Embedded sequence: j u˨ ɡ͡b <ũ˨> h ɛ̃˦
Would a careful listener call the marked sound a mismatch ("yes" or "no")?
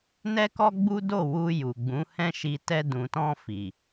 yes